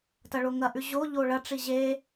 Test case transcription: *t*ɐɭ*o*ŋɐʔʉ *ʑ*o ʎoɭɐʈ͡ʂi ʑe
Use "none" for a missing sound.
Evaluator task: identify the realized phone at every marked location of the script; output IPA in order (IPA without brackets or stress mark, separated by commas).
t, o, ʑ